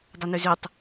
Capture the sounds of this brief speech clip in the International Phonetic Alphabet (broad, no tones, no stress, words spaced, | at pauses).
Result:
dˤənʉzʉtˤ